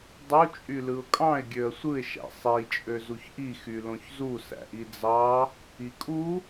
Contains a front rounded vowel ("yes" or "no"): yes